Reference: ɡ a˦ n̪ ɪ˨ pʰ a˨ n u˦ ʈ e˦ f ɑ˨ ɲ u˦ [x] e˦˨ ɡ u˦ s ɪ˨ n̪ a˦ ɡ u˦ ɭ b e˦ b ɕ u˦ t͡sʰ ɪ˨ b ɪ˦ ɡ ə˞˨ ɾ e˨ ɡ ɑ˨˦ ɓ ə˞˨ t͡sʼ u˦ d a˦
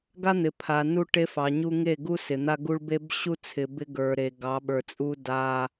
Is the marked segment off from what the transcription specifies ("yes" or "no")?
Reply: yes